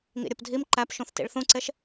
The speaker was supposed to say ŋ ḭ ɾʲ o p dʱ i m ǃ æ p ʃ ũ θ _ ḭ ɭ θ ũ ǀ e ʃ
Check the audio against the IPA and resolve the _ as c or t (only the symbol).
t